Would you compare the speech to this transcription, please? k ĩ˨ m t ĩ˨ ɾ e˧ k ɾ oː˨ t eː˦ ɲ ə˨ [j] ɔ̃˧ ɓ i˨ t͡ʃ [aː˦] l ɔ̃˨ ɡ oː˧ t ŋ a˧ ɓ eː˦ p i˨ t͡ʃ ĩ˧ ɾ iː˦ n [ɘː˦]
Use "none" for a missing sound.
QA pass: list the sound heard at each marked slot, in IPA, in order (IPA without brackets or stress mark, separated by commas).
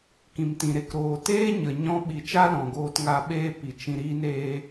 ɲ, a˦, eː˦